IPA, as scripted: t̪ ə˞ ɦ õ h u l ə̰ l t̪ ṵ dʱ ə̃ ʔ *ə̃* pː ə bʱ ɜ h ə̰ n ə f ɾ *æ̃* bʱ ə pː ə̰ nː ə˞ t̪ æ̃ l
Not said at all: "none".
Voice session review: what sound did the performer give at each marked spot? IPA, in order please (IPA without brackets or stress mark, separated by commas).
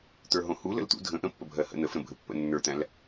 ə̃, ə̃